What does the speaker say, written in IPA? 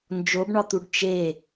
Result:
nd͡ʒobɳɒt̪uɖ t͡ʃe

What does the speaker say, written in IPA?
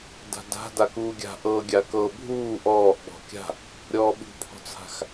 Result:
da̤da̤ dakuːɡʲa̤ ʔɤ ɡʲakɤ bʱuː ʔɔːʔ ɓɔ̤kʲa̤ | ɾʲɔːɓṳpʰɔ̤t͡sʰa̤x

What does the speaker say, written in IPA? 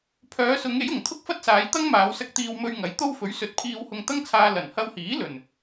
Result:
pʰœː˨˧sʊ˨˧ŋe˨˥jʊ˨˩ŋ t̪ʰʊ˥k̚fɐ˥t̚saː˨˧jt̪ɐ˥ŋ maː˨˧wsɐ˧k̚t̪iː˧wmɵ˧ɥ ŋɐ˨˥jt̪o˥w fɵ˨˥ɥsɵ˨˥t̚ pʰiː˧whʊ˧ŋt̪ɐ˥ŋt͡sʰaː˧ lɐ˨˩nhɐ˧whiː˨˥ lɵ˨˩n

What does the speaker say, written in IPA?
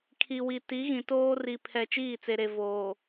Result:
kʰi˨wi˨ ti˨˦ɣĩ˨toː˦ri˨ pʰɛ˨ t͡ʃiː˦˨t͡se˨ɾe˨ voː˨

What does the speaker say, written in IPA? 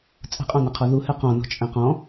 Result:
t͡sʼə̤qʼɔ̃nəqʰɔ ðuhɛ qɔ̃nɔ̤t͡ʃʼɛ̃ qɔ̃

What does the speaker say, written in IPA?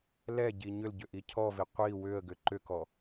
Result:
lɛɟi ɲʏl ɟʏʔicʰɔvi qʷi wʏə̯ɡʏ ǃʏkɔ

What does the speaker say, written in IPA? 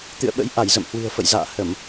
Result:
t̪ɨ̰˧˨ə̯ɓə̰˧˥j ʔa˧˩jzə̰˧˨m hwɨ̤˨˩ə̯fə̰˧˨jza̰ː˧˨ hə˧˩˨m

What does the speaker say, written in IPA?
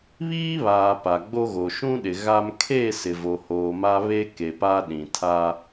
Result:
βiː˦βaː˨ pa˨ɡ͡bo˦ɣo˨ ʃũ˦ɗɪ˨ ɣa˦m kʰe˦˨ sɪ˨vo˨hoː˨ma˦ βe˦ ke˨pa˦ɗĩ˨ tʰa˦

